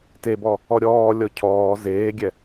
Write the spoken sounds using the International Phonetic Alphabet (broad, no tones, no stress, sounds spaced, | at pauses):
t e b ɔ | ɔ ɾʲ ɔː lʲ ɔ cʰ ɔː z eː ɡʲ ɛ